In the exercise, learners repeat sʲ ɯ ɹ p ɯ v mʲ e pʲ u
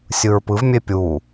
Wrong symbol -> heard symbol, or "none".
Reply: none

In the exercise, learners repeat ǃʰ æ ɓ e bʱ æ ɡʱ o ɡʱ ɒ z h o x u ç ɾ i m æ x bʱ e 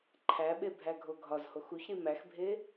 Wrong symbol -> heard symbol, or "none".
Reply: none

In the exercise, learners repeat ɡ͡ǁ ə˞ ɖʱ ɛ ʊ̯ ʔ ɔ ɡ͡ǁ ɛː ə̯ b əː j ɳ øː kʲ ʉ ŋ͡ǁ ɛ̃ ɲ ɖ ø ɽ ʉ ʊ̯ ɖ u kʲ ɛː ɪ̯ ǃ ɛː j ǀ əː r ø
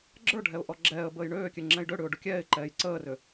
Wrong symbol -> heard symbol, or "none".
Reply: ɲ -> j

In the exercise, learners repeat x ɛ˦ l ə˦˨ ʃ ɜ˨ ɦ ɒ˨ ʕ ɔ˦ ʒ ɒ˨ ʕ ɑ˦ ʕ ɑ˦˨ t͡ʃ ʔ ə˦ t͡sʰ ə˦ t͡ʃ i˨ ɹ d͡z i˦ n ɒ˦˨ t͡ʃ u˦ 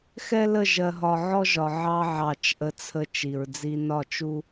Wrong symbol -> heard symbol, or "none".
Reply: ʃ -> ʒ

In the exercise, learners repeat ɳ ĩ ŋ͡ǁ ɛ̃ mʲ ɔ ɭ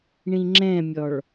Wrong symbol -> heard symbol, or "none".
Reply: none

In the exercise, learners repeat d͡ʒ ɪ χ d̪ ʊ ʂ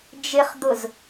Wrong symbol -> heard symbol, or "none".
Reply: ʂ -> z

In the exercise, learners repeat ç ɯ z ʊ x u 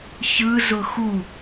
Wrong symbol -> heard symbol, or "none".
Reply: none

